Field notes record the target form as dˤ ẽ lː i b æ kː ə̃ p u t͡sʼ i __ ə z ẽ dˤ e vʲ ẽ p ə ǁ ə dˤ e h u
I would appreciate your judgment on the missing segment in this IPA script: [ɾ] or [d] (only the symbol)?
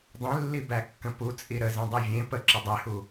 ɾ